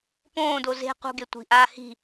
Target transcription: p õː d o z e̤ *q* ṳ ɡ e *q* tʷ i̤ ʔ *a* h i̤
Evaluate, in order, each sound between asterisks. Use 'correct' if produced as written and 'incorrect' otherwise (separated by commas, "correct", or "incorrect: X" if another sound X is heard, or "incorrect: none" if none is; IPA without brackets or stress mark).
correct, incorrect: none, incorrect: aː